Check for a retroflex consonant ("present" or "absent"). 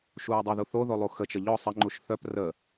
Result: absent